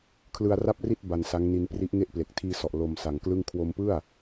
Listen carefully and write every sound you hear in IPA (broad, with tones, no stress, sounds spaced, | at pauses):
kʰ l ɯ˧ a̯ r a˥˩ p̚ r i˥˩ t̚ b a˧ n s a˦˥ ŋ n i˧ n p r i˦˥ ʔ ŋ e˥˩ ʔ p l e˨˩ k̚ tʰ iː˧ s ɔ˨˩ ʔ l o˧ m s a˨˩ ŋ k l ɯ˥˩ ŋ kʰ w o˧ m p ɯ˥˩ a̯